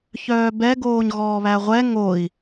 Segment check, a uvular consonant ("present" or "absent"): present